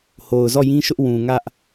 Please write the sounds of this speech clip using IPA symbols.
h o˨ ʊ̯ z ɔ˦˨ j ĩ˦ ʃ ʊ˦ ʔ w ũ˨ ŋ ä˦ ʔ

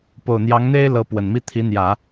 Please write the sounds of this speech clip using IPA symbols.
p o˨˩ ʊ̯ n̪ j ɑ˧˥ ŋ n̪ e˥ ɪ̯ l ɤ˧˥ p w ə˨˩ n m i˥ t̪ʰ i˧˥ n̪ j ä˨˩˦

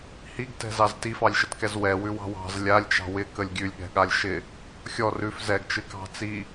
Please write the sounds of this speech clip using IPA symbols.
h i ɡ t ɛ̤ z ɑ z t i f ɑ lʲ ʃ ə t k ɛ z w ɛ w ʉ w ɑ̤ w ɑ̤ z lʲ a lʲ t͡ʃ ɑ̤ w ɪ k ə lʲ ɡʲ ʉ lʲ ɠ ɛ̤ ɠ a lʲ ʃ ɪ | xʲ ɔ r ʉ f z ɛ ɡ t͡ʃ ɨ k ɑ̤ t͡s i

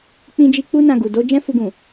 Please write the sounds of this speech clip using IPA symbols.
k͡p ĩ˧ d͡ʒ i˧ k͡p u˦ n ã˧ ɡ u˨ d o˧ d͡ʒ ɛ̃˦ f u˧ ɡ ũ˨

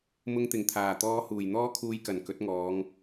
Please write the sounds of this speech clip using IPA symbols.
m ʊ˧ ŋ t̪ ɪ˨˩ ŋ t̪ʰ aː˨˩ t̪ ɔː˧ h uː˨˩ j n̪ ɔː˥ kʰ uː˧ j k ɐ˨˩ n k ɵ˨˥ t̚ ŋ ɔː˨˧ ŋ

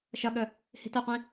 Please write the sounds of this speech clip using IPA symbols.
ʃ ʌ ɠ ə | h i̤ t ə qʷ ĩ

